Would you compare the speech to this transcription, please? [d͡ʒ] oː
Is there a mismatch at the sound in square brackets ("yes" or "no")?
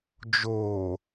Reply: no